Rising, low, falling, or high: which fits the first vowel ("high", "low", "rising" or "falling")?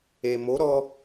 low